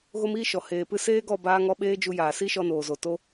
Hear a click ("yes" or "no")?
no